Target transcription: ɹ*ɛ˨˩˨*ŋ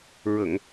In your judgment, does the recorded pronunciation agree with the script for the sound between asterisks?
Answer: no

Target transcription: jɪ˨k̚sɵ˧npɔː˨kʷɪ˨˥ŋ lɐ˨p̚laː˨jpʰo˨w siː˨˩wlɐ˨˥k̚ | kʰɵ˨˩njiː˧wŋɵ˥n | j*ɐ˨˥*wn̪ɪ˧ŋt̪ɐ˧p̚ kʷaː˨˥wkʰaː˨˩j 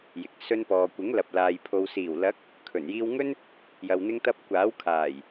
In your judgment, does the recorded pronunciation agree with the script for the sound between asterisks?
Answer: no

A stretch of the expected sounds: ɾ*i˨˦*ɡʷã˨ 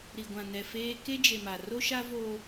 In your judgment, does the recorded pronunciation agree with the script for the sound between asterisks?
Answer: no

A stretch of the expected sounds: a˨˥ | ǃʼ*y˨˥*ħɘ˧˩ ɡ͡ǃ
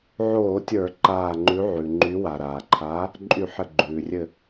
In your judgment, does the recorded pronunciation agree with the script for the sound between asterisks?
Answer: no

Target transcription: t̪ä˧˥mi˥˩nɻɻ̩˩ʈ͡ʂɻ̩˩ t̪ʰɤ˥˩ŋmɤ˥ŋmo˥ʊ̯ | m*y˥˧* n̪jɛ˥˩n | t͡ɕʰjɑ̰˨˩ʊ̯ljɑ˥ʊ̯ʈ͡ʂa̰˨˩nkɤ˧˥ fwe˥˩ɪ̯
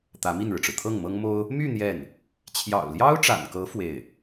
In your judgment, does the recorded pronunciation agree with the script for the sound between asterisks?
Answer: yes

